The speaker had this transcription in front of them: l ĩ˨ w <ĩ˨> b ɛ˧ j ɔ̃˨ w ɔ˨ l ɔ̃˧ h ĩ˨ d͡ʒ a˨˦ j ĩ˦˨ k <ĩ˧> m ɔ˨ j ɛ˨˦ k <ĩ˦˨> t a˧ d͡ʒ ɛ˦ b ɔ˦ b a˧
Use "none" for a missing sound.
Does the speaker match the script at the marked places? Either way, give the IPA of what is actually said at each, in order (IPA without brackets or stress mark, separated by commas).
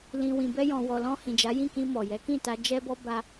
ĩ˨, ĩ˧, ĩ˦˨